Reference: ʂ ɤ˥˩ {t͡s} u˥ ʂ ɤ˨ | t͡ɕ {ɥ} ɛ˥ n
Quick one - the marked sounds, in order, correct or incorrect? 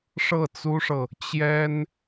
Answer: correct, incorrect

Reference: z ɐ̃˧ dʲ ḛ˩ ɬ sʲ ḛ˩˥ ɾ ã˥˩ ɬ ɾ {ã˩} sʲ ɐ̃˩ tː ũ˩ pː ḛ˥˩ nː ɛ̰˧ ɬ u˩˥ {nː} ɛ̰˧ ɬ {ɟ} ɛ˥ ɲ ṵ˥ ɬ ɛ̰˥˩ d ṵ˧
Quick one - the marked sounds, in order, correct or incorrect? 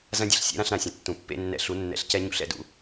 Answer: correct, correct, incorrect

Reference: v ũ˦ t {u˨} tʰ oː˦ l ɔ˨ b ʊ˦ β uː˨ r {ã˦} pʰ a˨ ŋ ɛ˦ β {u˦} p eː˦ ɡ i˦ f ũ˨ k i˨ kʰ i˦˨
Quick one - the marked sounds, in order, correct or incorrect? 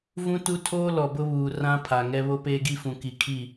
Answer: incorrect, correct, incorrect

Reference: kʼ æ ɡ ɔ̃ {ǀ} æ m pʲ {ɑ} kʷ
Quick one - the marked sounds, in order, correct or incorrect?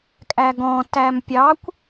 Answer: incorrect, correct

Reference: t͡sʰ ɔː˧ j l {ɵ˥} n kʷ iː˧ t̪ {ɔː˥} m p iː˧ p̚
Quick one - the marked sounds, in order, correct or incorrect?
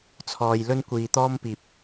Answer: correct, correct

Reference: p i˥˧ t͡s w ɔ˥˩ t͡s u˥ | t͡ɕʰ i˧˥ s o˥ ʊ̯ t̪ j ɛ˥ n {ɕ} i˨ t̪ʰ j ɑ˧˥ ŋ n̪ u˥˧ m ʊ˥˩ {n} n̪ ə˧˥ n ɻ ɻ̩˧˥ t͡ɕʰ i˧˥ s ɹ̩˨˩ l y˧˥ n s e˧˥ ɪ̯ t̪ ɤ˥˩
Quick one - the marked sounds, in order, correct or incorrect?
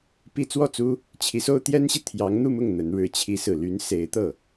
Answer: correct, incorrect

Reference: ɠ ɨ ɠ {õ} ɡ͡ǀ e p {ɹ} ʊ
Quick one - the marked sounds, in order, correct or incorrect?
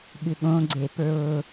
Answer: correct, correct

